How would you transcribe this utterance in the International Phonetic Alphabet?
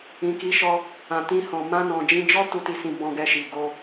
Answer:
ĩ˨ki˨˦ʃɔ˧ | ã˨tĩ˧hɔ̃˨ mã˧nɔ̃˨d͡ʒĩ˧d͡ʒɔ˦ tu˧ ti˧sĩ˧ bɔ̃˧ɡɛ˧ʃi˨ ɡo˧

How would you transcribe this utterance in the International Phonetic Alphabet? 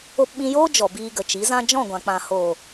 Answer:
o˧pɓĩ˧joː˦ d͡ʒɔ˨ biː˧ɡə˨t͡ʃi˨˦zã˦ d͡ʒɔ̃˦˨ɡʷã˨k͡pã˨ ho˨

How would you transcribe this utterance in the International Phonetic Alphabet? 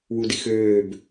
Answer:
wudixøːb

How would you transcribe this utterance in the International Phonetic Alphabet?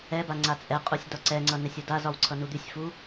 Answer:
ɛ baŋ͡ǀat͡sʼɛqʼusʲ dɒǀɛŋ͡ǀʌ nɛsʲudazɒw ǀʰʌnud̪ysʲfu

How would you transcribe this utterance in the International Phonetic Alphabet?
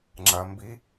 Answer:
ŋ͡ǁɐ˧ mbi˧˥

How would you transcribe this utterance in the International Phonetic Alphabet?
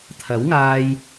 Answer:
t̪ʰɐ˨˥wŋaː˧j

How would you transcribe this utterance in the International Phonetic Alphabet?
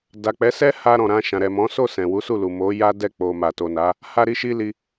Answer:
da˨k͡pɛ˨˦ sɛ˦ha˧ ɾɔ̃˨ɾã˧ʃã˨ ɾɛ˨mɔ̃˨˦ so˦˨ sɛ̃˨wu˨˦ su˦˨lu˨mo˨˦ ja˦dɛ˦˨ k͡po˨ ma˨to˨na˨˦ | ha˧ɾi˧ʃi˧ li˧

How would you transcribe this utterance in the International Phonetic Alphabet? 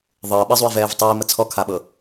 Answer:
ðˤɤː ɓəzˤui̯vɛːv tˤiːmə t͡sʰɔkʰaɓɤ

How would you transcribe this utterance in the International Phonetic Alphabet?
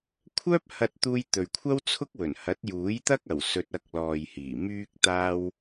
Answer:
kʷʰœː˥p̚hɐ˧t̚t̪uː˧j t̪ɵ˨ɥkʷʰɐ˥wt͡sʰʊ˥k̚wɵ˨˩n hɐ˨˥t̚ juː˨˥jt̪ɐ˥k̚ɐ˨˩w sɵ˨t̚ ɐ˧k̚lɔː˨jhiː˨˩ myː˧k̚t̪aː˧w

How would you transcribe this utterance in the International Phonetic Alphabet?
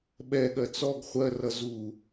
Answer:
ɓɛɠɜ t͡sɔɡ χʷɜrʌ zu

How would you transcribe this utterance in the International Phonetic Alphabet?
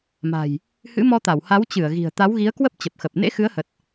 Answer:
ma̤˨˩j | hɨ̰˧˥mɔ˧t̪a˧˩w ha˨˦wt͡ɕɨ˧˩ə̯ ɣi̤˨˩ə̯ t̪a˨˦wɣi˨˦ə̯kwə˦˥p̚ t͡ɕə˨˩p̚xə˨˩p̚ nḛ˧˥xɨ˨˦ə̯hə˨˩t̚

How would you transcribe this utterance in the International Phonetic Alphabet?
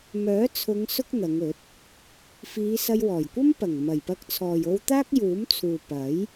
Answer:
mœː˨˥t͡sʰʊ˨˧ŋ sʊ˥k̚n̪ɐ˨˧ŋɵ˨˥t̚ | fiː˨˧sɐ˧jwɔː˨˩jkʷɐ˥m pɐ˨˩ŋmɐ˨˩j pɐ˧k̚t͡sʰɔː˨jo˧wt̪aː˥k̚ juː˨˥mt͡sʰuː˨ pɐ˨˥j

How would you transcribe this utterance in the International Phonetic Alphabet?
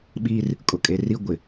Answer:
ɓiː˦r | kʼʊ˨kʼe˨ri˦ ɡʷɪ˨

